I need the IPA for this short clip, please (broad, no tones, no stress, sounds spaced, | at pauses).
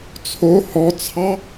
t͡sʰ o h ɔ t͡sʰ ɑ